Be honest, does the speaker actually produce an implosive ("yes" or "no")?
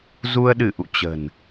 yes